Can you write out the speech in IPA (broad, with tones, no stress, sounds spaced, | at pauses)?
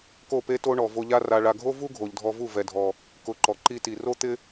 k o˦˨ p e˦ t o˦ ɳ ɔ˨ v o˧ ʎ a˦ r a˨ ɭ a˨ ɡʱ o˦ v u˦ ɡʱ o˨ ʎ dʱ ɔ˧ v u˦˨ v ɛ˨ dʱ ɔ˨ | k ʊ˧ ǃ ɔ˨ ǃ i˦ t i˨ r o˦ t̪ ɪ˦